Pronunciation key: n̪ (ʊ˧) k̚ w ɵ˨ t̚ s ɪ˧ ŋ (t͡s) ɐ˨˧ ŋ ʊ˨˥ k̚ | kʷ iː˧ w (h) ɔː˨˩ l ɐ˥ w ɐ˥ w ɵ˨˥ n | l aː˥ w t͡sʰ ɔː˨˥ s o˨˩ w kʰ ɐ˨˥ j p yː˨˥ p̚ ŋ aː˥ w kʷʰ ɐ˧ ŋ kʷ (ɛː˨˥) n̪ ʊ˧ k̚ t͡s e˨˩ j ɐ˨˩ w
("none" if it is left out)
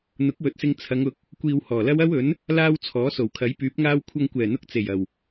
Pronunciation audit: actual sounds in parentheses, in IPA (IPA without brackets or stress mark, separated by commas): ʊ˨˥, t͡sʰ, h, ɛː˨˩